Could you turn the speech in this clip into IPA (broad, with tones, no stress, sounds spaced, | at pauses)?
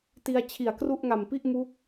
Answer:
t i˧ a̯ t͡ɕʰ i˨˩ a̯ k r u˥˩ ʔ ŋ a˨˩ m p i˥˩ ʔ m uː˦˥ k̚